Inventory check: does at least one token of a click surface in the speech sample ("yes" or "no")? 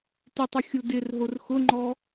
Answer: yes